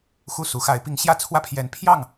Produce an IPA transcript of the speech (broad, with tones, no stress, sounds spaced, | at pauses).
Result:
x u˥˩ s u˧˥ x a˧˥ ɪ̯ p i˧˥ ŋ ɕ j ä˥˩ t͡sʰ w ä˥ pʰ j ɛ˧˥ n pʰ j ɑ˥˩ ŋ